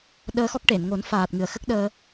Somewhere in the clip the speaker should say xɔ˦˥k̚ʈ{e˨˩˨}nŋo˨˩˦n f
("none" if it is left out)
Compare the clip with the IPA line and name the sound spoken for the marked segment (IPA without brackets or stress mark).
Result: e˨˩˨